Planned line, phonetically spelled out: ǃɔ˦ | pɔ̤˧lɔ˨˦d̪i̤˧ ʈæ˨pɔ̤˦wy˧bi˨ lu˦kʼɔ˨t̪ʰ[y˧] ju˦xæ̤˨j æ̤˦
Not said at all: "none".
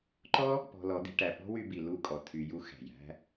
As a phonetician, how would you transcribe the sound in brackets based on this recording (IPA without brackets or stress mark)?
y˧